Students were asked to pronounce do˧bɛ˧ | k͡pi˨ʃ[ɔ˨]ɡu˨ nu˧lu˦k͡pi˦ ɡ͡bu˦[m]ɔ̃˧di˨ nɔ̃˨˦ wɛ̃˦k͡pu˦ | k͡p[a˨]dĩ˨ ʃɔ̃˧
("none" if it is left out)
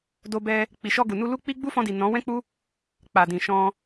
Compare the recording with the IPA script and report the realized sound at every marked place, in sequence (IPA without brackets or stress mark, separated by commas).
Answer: ɔ˧, f, a˨